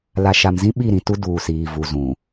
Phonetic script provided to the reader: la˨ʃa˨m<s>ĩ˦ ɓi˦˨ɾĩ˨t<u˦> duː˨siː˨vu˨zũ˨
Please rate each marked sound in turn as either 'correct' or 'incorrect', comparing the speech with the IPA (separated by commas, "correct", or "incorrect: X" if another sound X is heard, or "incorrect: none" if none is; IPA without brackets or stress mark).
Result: incorrect: z, correct